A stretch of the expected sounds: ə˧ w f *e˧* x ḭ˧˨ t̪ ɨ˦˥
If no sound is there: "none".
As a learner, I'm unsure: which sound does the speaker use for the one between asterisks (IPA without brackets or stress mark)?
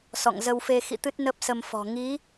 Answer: e˧